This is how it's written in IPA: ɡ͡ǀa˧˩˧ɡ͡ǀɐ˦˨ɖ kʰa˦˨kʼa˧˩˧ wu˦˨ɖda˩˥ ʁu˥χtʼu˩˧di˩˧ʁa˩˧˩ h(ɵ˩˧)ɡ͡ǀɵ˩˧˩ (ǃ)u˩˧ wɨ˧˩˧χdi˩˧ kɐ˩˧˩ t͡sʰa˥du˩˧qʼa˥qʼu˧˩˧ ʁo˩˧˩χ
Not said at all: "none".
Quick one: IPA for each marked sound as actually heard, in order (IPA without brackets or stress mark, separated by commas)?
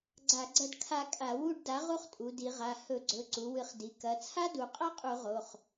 ɵ˧˩˧, ǀ